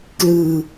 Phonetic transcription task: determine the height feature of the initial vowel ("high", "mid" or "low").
high